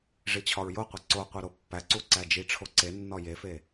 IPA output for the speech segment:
ʐ i t͡ɕʰ ɒ ɹ j o qʷ i ǀ o qʷ i ɾ o pː æ ǀ u ǀ æ d͡ʒ i ʈ͡ʂʰ o ǀ e nː ɒ j e f e

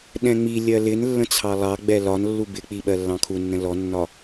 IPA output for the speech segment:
ɗ ɛ̃ ŋ͡m i lʲ ɜ l ɪ n lː ə̃ t͡sʰ ɑ lˠ ɑ ɡ͡b ɛ l ɒ n lː u b ɪ k͡p i ɓ ɜ lː ɑ̃ kʰ u nː ə̃ l ɔ nː ɒ

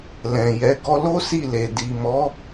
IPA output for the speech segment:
l ɛ̃˨ j ɛ˨˦ ɡ ɔ˧ l o˦ s i˦˨ l e˨ d i˨ m ɔ˨˦

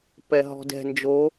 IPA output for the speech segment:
p ɛ ɦ ɔ̤ d ɛ̤ n d͡ʒ o

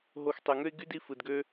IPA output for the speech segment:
ɦ o˧ x tˤ y˩ ŋ ø˥ ɪ̯ ɡ y˥ d i˧ f ɯ˩ d ɡ ø˧

